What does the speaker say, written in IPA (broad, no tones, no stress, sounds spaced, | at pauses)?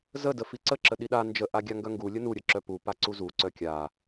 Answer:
z ə d ə f i ǀ ə ǁ ə ɗ i ɗ a n d͡ʒ ə ʔ a ɡʲ a ŋ ɡ œ ŋ ɡ u lʲ ə n u ɾʲ ə ǁ œ p u p a ǀ u z u ǀ œ kʲ a